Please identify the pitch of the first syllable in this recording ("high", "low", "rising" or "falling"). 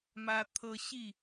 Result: high